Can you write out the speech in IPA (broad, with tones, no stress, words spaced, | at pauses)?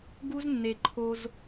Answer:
ɡu˦znːe˨ǃʰo˧z